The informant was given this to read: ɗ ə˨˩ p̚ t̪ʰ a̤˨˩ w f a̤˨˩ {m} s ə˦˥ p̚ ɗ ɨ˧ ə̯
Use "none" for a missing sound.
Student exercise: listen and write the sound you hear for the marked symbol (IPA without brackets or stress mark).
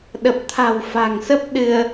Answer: ŋ